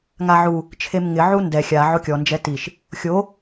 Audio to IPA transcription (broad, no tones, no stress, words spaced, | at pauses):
ŋaʕu | t͡ʃʰemŋɪ ʕundɛ xʲa ʕokʲɔ nd͡ʒɛtiʃ | xʲo